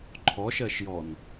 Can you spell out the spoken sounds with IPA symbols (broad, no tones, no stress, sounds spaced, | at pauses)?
ǃʰ ɔ ʃ ɜ ʃ j ɔ n